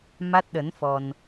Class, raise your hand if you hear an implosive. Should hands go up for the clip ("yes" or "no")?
yes